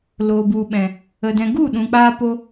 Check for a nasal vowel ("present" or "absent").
present